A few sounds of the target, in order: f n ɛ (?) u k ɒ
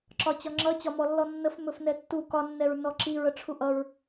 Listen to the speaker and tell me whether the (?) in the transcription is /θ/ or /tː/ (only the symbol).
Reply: tː